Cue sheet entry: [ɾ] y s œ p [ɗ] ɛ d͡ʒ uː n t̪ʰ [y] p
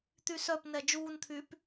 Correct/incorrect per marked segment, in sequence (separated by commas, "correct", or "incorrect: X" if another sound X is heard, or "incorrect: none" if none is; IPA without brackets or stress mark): incorrect: t̪, incorrect: n, incorrect: yː